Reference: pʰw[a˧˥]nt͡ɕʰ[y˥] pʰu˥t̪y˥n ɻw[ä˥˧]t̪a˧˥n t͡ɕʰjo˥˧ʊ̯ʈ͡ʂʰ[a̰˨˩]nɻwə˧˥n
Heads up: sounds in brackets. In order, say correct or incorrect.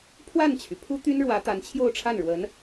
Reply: incorrect, incorrect, incorrect, incorrect

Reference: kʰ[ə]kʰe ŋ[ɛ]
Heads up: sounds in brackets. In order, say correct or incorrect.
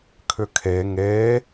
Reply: incorrect, incorrect

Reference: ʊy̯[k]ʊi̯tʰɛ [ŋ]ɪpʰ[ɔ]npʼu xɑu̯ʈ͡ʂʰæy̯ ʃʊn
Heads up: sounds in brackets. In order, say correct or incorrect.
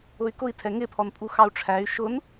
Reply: correct, correct, correct

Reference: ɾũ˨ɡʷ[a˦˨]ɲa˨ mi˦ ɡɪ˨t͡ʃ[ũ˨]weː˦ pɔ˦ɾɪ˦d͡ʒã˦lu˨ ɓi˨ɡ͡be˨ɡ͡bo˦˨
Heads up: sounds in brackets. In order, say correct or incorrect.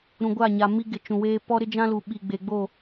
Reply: correct, correct

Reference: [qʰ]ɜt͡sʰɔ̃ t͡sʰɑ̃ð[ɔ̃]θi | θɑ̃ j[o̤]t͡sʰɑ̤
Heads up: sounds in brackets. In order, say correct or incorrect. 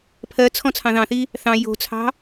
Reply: incorrect, incorrect, correct

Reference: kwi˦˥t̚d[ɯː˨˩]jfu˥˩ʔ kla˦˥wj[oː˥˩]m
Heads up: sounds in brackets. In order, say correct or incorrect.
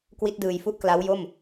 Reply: correct, incorrect

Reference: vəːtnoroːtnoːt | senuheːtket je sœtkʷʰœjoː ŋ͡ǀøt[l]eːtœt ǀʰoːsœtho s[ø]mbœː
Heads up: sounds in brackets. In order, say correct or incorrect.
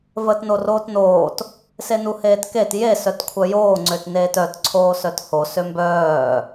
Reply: incorrect, correct

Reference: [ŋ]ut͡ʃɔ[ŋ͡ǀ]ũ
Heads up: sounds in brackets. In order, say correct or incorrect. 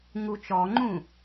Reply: correct, incorrect

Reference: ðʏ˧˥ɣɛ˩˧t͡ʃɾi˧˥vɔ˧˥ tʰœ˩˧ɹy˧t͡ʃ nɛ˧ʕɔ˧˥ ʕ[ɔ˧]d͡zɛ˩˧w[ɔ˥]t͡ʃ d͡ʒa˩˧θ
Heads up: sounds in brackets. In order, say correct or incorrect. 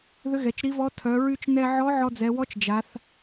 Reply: correct, incorrect

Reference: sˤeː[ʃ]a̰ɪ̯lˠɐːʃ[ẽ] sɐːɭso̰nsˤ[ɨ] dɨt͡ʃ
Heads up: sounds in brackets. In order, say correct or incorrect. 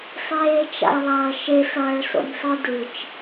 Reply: incorrect, incorrect, correct

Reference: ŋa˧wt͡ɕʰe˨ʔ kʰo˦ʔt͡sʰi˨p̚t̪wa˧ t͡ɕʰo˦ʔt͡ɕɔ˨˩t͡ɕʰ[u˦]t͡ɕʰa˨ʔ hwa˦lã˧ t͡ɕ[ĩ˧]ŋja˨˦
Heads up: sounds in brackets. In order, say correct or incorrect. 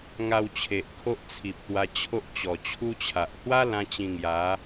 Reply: correct, correct

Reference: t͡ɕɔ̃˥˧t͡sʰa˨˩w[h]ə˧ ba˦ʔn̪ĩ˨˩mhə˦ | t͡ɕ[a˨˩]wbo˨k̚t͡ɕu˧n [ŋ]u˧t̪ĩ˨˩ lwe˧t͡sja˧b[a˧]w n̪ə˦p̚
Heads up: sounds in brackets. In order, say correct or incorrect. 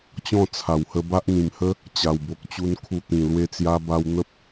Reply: correct, correct, incorrect, correct

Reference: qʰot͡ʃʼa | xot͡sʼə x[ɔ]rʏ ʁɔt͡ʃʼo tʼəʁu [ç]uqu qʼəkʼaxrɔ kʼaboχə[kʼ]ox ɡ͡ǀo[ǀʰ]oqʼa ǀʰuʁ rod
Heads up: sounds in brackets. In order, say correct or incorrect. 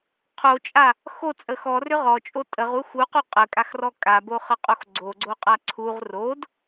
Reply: correct, incorrect, incorrect, incorrect

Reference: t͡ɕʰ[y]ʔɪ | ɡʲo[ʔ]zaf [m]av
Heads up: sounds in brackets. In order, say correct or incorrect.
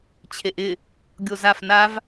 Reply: incorrect, incorrect, incorrect

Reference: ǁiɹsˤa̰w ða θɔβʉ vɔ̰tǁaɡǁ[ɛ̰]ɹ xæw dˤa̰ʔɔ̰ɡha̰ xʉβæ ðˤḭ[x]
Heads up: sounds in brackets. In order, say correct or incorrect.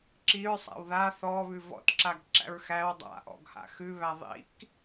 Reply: incorrect, incorrect

